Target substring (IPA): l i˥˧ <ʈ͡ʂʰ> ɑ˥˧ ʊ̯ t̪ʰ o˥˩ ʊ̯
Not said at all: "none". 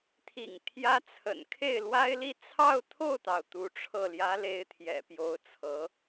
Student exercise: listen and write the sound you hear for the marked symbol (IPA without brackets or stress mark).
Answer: t͡sʰ